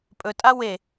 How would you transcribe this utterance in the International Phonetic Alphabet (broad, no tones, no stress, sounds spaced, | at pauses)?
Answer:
pʼ ɵ tʼ a w e